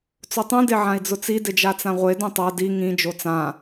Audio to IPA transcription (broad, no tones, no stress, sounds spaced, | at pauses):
t͡s o tˤ ũ d e ʕ ã i̯ d͡z ʊ t͡s i d ɪ d͡ʒ a t͡s ã ʁʷ e d ũ tˤ a d i ŋ ĩ d͡ʒ o t͡s ã